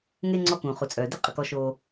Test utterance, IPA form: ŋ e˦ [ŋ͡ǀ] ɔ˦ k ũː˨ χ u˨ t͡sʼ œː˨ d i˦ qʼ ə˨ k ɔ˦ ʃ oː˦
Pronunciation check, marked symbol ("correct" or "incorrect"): correct